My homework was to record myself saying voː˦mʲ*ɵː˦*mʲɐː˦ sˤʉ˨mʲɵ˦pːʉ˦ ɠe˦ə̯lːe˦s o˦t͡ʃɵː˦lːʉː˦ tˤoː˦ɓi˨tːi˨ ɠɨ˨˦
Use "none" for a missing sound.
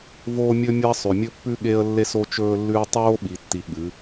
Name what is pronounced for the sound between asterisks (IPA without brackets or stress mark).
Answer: ɵ˦